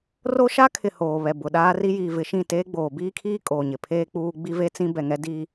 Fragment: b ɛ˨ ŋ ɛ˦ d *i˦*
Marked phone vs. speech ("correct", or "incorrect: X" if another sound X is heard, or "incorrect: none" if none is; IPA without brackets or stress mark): correct